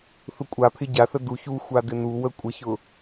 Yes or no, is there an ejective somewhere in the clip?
yes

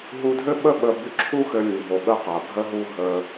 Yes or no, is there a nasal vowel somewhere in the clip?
no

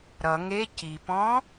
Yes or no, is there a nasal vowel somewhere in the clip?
yes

